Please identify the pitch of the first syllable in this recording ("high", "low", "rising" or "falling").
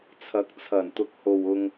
rising